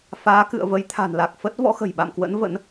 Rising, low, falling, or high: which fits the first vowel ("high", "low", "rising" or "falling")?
rising